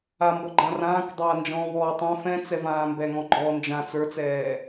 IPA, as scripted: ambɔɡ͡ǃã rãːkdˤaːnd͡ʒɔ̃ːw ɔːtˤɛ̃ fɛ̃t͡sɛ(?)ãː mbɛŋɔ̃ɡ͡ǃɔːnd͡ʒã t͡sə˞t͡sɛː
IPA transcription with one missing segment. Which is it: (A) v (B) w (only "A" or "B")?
A